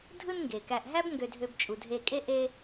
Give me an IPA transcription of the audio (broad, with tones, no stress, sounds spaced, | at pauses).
dʱ ɯ˦ n ŋ ɡ e˩ k æ˨ ʔ ɦ æ˥ b ŋ ɡ ø˨ dʱ ø˨ b t͡ʃʼ u˩ dʱ e˨ kʼ e˦ ʔ e˦